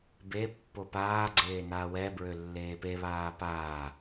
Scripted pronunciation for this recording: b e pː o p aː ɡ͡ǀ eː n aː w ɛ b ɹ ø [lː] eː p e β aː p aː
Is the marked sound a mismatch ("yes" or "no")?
no